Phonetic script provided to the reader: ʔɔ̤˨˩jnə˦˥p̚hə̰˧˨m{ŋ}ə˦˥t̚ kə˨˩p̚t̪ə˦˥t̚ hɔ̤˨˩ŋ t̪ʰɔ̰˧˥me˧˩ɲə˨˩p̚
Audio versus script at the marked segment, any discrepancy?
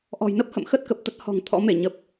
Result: yes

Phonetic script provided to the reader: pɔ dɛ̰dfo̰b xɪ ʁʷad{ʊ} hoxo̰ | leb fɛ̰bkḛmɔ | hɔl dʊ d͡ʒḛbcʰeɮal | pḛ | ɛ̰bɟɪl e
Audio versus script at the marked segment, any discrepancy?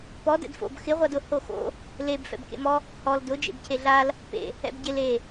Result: no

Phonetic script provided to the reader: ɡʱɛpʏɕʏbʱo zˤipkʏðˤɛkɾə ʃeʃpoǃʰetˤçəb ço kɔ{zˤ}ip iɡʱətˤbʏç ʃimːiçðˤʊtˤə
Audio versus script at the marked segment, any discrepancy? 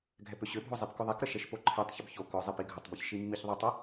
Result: no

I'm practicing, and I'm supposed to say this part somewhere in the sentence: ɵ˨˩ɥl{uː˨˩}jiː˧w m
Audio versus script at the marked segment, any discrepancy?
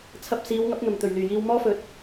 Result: yes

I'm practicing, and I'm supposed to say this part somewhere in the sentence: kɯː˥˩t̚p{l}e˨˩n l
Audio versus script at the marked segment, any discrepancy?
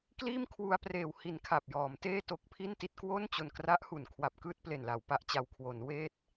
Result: no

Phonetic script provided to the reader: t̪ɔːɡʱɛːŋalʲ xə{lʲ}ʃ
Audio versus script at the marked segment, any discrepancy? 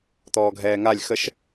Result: yes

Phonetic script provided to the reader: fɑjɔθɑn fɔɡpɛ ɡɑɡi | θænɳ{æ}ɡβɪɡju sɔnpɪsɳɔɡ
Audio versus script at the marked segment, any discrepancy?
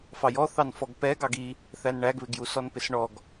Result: no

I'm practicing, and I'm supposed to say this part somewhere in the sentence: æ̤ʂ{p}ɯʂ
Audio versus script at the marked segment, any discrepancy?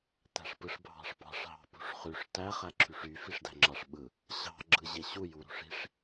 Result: no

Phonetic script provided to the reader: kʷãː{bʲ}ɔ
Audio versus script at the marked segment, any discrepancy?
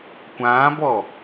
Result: yes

